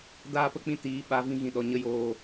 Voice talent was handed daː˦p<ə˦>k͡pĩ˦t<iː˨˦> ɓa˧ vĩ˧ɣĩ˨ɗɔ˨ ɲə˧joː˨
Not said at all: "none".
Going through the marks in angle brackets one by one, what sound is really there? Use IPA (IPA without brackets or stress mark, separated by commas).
ə˦, iː˨˦